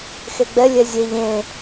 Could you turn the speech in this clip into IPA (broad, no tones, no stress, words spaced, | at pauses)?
xeɡ͡bɛ lʲɛzʲeʎ ẽ